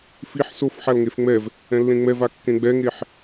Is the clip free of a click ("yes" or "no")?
yes